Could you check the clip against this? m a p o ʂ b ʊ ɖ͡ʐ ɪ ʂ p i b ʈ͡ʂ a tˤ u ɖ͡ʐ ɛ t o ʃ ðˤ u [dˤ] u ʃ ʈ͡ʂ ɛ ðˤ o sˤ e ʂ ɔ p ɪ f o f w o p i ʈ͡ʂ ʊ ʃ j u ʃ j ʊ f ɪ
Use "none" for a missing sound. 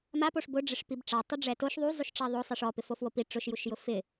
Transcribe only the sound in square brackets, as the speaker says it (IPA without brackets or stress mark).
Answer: zˤ